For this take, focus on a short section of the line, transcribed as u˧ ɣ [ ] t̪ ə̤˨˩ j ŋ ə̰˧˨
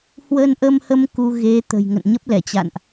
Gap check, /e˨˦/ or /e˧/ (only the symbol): e˨˦